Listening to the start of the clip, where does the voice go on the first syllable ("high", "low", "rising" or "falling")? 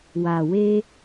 low